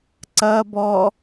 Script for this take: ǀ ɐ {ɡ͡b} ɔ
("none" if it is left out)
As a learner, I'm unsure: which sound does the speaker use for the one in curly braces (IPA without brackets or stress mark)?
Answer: b